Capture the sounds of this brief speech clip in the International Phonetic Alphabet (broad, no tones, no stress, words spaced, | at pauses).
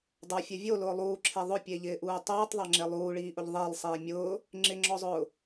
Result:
dˤafʲɛ vʲolʊː lˠuːǁʰe ðˤʊpʲeʎɪːʔuː tˤuːtˤðˤaŋ͡ǁe lˠuːɭiːʔʊʎ ðˤɪːlˠsˤiː mʲʊː | ŋ͡ǁɪŋ͡ǁɔzˤʊː